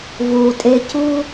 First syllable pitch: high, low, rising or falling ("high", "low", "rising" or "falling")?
low